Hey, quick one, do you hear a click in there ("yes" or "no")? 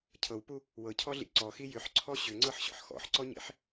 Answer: yes